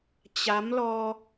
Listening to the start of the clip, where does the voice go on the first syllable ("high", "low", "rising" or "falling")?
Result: rising